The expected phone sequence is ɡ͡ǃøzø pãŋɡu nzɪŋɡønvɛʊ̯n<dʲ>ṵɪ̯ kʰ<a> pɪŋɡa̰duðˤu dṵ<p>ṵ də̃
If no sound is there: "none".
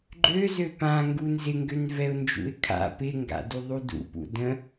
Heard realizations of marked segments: d͡ʒ, a̰, p

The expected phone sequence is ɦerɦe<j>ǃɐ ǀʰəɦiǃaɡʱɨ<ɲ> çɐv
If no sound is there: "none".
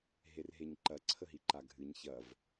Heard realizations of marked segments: ɲ, ɲ

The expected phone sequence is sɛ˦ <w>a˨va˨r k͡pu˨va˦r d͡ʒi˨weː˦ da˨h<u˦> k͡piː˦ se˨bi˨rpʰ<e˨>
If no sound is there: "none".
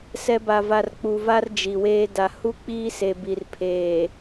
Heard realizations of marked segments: b, u˦, eː˨

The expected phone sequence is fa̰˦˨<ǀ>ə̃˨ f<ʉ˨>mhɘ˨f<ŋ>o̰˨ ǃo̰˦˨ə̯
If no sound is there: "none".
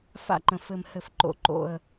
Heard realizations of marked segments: ǃ, ɘ˨, ǃ

